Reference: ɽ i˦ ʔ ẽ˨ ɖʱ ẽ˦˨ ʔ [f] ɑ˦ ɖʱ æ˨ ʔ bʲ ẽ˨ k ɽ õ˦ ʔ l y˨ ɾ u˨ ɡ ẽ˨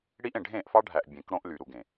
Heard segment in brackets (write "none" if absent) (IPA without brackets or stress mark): f